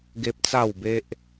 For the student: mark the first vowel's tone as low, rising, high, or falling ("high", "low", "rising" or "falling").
high